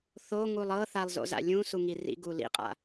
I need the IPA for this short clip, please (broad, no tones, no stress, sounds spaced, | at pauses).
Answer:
θ o ŋ u lˠ ɤ θ a lˠ z o̰ z a̰ lʲ ũ s u ŋ i r ḭ ɡ u l ḭ qʼ a̰